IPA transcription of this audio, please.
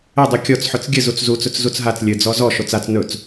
ɘ dˤ u kʲ ɔ t͡s ħ ɵ t͡s ɡʲ ɘ z u t͡s z u t͡s ɵ t͡s z u t͡s ɦ a t͡s lʲ ɘ d͡z ɔ z ɔ ʃ o t͡s a t͡s n ɵ t͡s

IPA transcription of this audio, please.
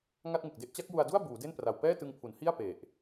ŋ a˥˩ t̚ ŋ ɯ˨˩ k̚ d e˥˩ ʔ t͡ɕ a˦˥ k̚ j u˧ a̯ d u˥˩ a̯ b uː˩˦ d e˥˩ n p r a˨˩ w p ɛː˥˩ t ɯ˧ ŋ pʰ u˩˦ n h i˥˩ a̯ p e˨˩ ʔ

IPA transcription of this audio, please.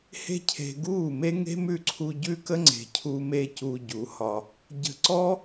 h e̤˦ cʰ e̤˧ ɡ uː˦˨ m e˦ ŋ e̤˦ m ʉ˦˨ ǀʰ u˧ ɟ ʉ˦ k ə˦ ŋ͡ǀ e̤˧ cʰ u˦ m e˦ c u˧ ɟ u˨˦ h ɒ˧ | ɟ ə̤˧ ǀ ɔ˦

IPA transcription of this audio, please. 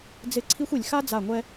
d͡z ɪ˦˨ ǀʰ i˦ xʷ i˨ lʲ x a˦ d͡z a˦˨ ŋʷ ɛ˦

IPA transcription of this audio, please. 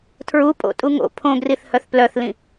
tʰ ɹ u pʼ o̰ tʼ u ŋ o̰ pʰ õ ɡ r i θ h œ θ p l œ θ l ĩ

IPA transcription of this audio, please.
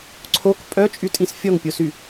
ǀʰ o k pʼ œ t͡ʃʼ y tʼ ĩ s fʲ ɔ ŋ pʲ o s y

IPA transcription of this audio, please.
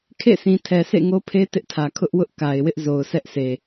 kʰ ḛ˦˨ s ĩ˨ tʰ ɛ˨ sʰ ḛ˦˨ ŋ o˦ pʰ e˦ t ɪ˦ ʔ tʰ ä˨ kʰ ʊ˦ ʔ w ʊ˦ ʔ k a˨ ɪ̯ w ɪ˦ ʔ z o˨ ʊ̯ sʰ ɛ˦ ʔ sʰ e˨

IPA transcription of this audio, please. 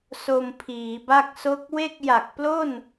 s o˧ m pʰ iː˩˦ b a˥˩ k̚ s o˥˩ k̚ w e˥˩ k̚ j a˨˩ k̚ p l o˥˩ n

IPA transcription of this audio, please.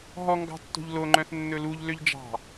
ɦ ɔ ŋ ɡ ɑ̤ tː o̤ ʎ l o ŋ͡ǃ œ̃ θ nː ɵ l u ʎ l ø ʎ d͡ʒ ɑ̤

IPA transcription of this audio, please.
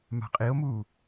m a̤ qʼ i o̯ m uː

